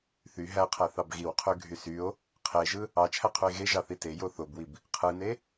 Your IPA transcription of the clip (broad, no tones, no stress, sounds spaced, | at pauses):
θ y ɦ æ qʰ æ θ ɑ b ɣ i w qʰ ø ɡʱ y s y o̯ | qʰ e ʒ ɯ | ɑ t͡ʃʰ æ qʰ u e̯ ɣ e ʒ ɑ θ i t e j o θ o b w i b | qʰ ɯ n e